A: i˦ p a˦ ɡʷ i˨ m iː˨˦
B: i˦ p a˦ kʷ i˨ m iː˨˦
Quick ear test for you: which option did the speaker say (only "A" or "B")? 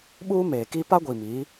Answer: A